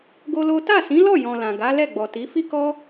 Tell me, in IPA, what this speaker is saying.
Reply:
ɡ o˦ l o˦ t a˦˨ s ĩ˨˦ l ɔ˦˨ j ɔ̃˨ l ã˨ ɡ a˨˦ l ɛ˦˨ ɡ͡b ɔ˨ t i˨˦ f i˦ k ɔ˦

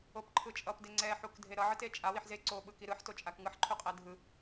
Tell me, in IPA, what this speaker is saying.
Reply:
o p ǃʰ ɯ t͡ʃʼ ʌ p d e ŋ͡ǀ ɛ ħ u k dʱ e ɾ ʌ ʕ ɯ t e t͡ʃʼ a w i ħ z e ǀ o ɓ ɯ k i ɾ ɯ ħ t o t͡ʃʼ a k ŋ ɯ ħ ǃʰ u qʼ ɛ dʱ ɯ

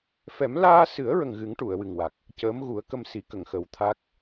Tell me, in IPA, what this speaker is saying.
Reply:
f ɛ˨˩˦ m l aː˧ s ɨ˨˩˦ ə̯ ɹ ə˨˩ ŋ ɣ ɨ˨˩˦ ŋ ʈ u˨˩˨ ə̯ w ɨ˨˩ ŋ w a˨˩ k̚ | c əː˧˥ m ɣ u˨˩˦ ə̯ k ə˧ m s i˨˩˦ k ə˨˩˨ ŋ x ə˨˩˦ w t̪ʰ a˦˥ k̚

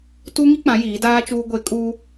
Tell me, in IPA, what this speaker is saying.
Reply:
t u˦ ŋ i˦ k͡p ã˨˦ j iː˨˦ d aː˦ t͡ʃ uː˦ ɡʷ e˦ kʼ uː˦

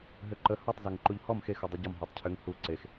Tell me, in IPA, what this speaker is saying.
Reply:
ɦ ø ǃ ə h ɒ tˤ z ɔ ŋ ǃ u ʎ h ɔ m x e x u dˤ e ɟ ɔ m ɦ u tˤ cʰ ø ŋ h u ǀ e x

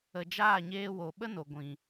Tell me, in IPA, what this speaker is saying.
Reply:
ə˨ d͡ʒ aː˦˨ ɲ eː˧ w o˨ ɓ ə˦ n o˨ ɡʷ ĩ˨

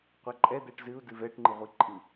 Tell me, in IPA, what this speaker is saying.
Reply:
qʷ ɛ ǃʼ ɛ d̪ ɛ ʈ z ɨ u̯ d ɨ v ɛ ʈ ŋ͡ǃ ɨ ʁʷ i ǃʼ ɨ

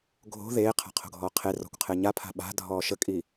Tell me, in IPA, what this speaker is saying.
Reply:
ɡʱ o̤ ð eː qʰ a̤ qʰ o̤ ɡʱ ɔː qʰ e r ɔ̤ kʷ qʰ e ɲ a pʰ a̤ ɓ a̤ dʱ ɔː ʃ ə kʼ i

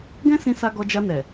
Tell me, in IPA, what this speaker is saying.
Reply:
ɡ ɛ̃˦ s ĩ˧ s a˧ ɡ ɔ˧ d͡ʒ a˧ n ɛ˨

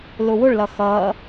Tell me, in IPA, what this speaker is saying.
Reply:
l ʊ w ʊ ɭ l ʌ x ʌ

